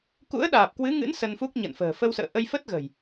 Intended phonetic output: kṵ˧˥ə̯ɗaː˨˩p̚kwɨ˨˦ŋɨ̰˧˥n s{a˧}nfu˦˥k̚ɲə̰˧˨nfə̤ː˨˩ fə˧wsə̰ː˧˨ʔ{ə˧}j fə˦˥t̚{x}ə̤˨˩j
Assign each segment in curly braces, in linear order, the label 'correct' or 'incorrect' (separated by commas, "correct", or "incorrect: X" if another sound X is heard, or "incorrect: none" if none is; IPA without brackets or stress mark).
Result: incorrect: ə˧, correct, incorrect: ɣ